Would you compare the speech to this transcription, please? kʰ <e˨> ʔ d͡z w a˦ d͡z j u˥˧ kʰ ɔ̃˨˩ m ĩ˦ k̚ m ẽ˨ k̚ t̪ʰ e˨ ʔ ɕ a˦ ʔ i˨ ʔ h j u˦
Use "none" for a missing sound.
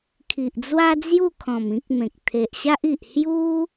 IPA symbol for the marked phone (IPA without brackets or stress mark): i˨